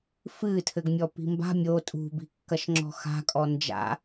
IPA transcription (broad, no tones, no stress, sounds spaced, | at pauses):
f ɨ tʰ ɘ ɡ mʲ ɔ p i̤ m b a̤ mʲ o tʼ ṳ b i̤ kː ɐ ʃ ŋ͡ǁ ɔ̤ x a̤ kʼ ɔ n d͡ʒ a̰